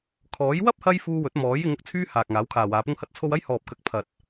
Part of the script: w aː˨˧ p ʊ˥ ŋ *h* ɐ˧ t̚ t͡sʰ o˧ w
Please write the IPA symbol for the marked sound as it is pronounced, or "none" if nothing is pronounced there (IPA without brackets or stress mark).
h